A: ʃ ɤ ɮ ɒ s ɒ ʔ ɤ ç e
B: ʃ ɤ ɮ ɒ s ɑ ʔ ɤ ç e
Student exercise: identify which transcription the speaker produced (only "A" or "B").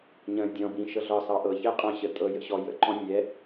B